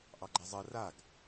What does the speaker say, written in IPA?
ʔ ɑ ɡ͡ǃ ɛ zˤ ɜ r a ɡ

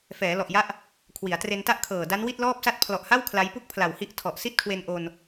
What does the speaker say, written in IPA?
f ɛː˩˦ l ɔ˨˩ ʔ j a˦˥ ʔ | kʰ w i˩˦ a̯ t r e˧ n t a˥˩ ʔ kʰ ɤː˨˩ d a˦˥ n w i˥˩ t̚ l ɔː˥˩ p̚ s a˥˩ t̚ pʰ l ɔ˨˩ ʔ h a˥˩ w kʰ l a˦˥ j p u˥˩ k̚ pʰ l a˨˩ w h i˥˩ ʔ tʰ ɔ˨˩ ʔ s i˥˩ t̚ kʰ w e˧ n ʔ o˧ n

